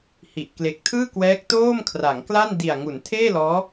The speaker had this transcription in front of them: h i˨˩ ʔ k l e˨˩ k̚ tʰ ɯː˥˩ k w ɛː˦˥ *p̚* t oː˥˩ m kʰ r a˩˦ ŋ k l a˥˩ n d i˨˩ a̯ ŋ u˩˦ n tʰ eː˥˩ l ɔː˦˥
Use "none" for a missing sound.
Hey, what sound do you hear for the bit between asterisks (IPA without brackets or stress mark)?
k̚